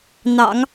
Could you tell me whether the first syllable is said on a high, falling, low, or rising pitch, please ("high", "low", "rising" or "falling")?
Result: low